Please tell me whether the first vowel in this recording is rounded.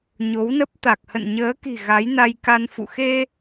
yes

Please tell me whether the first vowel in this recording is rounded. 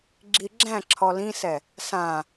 no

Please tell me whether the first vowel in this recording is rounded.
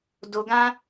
yes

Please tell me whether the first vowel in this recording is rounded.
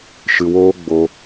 no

